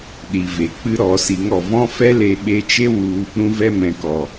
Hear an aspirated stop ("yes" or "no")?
no